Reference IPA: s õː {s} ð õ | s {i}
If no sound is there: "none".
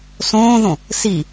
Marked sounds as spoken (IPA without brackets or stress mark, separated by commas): none, i